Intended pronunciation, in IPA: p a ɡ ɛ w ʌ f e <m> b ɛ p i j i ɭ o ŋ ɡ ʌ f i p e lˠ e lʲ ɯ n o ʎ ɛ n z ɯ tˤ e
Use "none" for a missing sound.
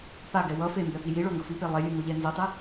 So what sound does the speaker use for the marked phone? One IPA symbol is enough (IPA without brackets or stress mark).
m